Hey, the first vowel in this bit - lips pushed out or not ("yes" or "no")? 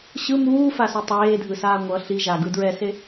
no